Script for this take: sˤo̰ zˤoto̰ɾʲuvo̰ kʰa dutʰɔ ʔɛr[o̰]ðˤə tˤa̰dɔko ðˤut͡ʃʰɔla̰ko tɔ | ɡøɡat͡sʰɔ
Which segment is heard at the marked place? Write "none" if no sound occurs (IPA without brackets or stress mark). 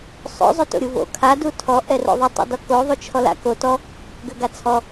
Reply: o̰